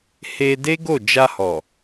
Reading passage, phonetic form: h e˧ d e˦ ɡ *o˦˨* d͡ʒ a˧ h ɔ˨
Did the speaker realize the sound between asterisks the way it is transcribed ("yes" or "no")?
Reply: yes